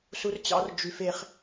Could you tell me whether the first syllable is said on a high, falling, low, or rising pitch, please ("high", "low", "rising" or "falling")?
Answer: high